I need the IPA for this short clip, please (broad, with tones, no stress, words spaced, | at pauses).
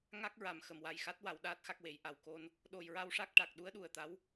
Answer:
ŋa˦˥k̚ɹa˨˩m xə˨˩mwa˨˩jxa˦˥t̚ wa˨˩˦wɗaː˦˥t̚xa˦˥k̚we˨˩˦j ʔa˨˩wko˧n | ɗo˨˩jɹa˧wʂa˦˥k̚ʈa˨˩k̚ ɗu˧˥ə̯ ɗu˨˩ə̯t̪a˧˥w